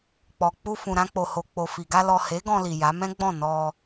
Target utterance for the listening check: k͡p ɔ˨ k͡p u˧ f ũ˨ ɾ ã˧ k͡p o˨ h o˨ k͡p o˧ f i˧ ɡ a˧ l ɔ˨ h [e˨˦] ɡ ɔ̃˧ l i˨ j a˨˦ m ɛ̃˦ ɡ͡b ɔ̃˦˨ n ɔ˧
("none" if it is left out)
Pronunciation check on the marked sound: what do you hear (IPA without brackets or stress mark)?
e˨˦